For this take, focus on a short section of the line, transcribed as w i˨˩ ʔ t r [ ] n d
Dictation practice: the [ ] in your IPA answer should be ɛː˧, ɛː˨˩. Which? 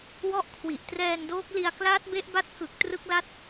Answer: ɛː˧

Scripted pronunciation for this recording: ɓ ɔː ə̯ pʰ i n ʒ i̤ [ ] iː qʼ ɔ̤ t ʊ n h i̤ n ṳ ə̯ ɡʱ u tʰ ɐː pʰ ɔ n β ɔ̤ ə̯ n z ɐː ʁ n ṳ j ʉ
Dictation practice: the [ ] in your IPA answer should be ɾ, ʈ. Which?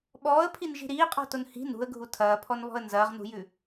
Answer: ɾ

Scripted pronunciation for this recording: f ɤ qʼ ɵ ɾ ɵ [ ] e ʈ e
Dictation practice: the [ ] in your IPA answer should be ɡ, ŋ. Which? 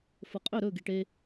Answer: ɡ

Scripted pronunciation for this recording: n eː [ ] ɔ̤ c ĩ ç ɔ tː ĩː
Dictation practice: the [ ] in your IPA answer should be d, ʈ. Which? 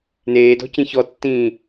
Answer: d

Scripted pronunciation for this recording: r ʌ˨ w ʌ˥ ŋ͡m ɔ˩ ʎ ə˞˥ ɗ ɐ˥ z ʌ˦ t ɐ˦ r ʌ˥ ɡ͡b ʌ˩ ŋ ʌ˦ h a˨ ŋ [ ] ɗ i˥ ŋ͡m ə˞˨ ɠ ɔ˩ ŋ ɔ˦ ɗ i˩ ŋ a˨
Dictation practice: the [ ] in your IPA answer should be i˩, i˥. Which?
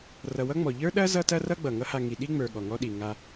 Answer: i˩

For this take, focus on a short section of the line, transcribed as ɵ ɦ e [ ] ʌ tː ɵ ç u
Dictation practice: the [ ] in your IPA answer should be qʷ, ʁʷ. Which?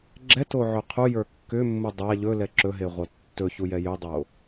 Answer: ʁʷ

